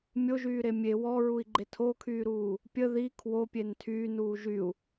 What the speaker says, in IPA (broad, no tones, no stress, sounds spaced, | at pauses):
mʲ o ʒ yː ɾ e mʲ e w ɔ ɹ u i̯ ɡ͡ǃ e tʰ o kʰ yː ɾ uː | pʲ ə ð i kʰ w o pʲ e n tʰ yː n uː ʒ y u̯